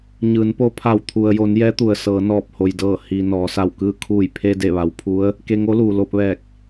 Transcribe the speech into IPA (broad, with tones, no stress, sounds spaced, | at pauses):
ɲ ɯː˩˧ n p o˧˥ pʰ a˧˩ w t̪ʰ u˩ ə̯ j o˩˧ n j ɛː˧˥ t̪ u˩ ə̯ s ɤː˩˧ n ɔː˧˩ p̚ h o˩ j d ɤː˧˩ h i˩ n ɔː˩˧ s a˧˩ w k ɯː˥˨ kʰ uː˧˩ j pʰ e˧ d e˧˩ ʋ a˩˧ w pʰ u˧˥ ə̯ | k e˧ ŋ o˧˥ l uː˩ l o˧ p̚ ʋ ɛː˧˩ k̚